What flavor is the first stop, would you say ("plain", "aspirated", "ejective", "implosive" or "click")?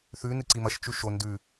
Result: click